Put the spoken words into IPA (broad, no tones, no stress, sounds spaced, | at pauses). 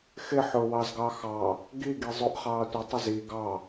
x ɪ ħ ʊ w ɑ z ɡ ɑ x ɑ | ɡ i ɡ i zˤ ʊ ʔ χ ɑː tʷ ɪ tˤ ɪ z i ɡ ɑ